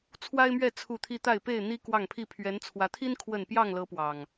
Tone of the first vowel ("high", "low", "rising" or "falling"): high